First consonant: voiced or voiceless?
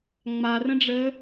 voiced